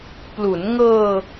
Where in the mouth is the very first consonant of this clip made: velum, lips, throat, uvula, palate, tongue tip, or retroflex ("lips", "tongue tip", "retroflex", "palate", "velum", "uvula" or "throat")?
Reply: lips